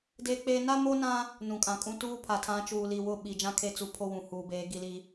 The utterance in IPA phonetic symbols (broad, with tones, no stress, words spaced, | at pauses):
deː˦k͡peː˦ na˦mo˦nã˦ | nũ˨kʼã˨kʼũ˦ tuː˦pʰa˨tʰã˨˦ t͡ʃuː˨ li˨wʊ˦˨ ɓi˨d͡ʒã˦kʰe˦t͡su˨ pʰo˦wũ˨huː˨beː˨˦ ɡi˦li˦